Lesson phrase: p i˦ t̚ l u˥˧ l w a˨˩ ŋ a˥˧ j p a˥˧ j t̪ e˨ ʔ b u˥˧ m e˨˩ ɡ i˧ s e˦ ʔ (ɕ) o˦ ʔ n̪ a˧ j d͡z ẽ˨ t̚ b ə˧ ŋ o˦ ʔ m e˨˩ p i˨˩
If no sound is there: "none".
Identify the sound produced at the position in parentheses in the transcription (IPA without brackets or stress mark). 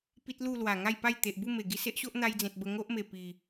ɕ